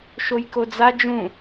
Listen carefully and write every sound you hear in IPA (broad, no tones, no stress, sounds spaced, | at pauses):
ʃ o j k o d͡z a d͡ʒ ũ